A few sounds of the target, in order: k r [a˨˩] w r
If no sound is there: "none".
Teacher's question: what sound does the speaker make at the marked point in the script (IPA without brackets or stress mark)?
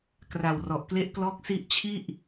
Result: a˨˩